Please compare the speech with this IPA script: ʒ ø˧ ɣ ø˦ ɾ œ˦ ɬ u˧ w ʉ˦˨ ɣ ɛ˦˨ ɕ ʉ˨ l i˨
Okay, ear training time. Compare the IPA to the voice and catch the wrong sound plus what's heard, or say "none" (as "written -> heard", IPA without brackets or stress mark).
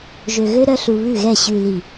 w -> β